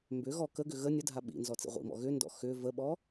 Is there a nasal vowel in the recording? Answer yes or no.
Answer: no